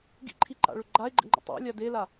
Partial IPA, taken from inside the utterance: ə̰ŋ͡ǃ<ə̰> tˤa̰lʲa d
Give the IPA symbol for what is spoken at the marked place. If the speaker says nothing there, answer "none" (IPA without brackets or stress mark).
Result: ə̰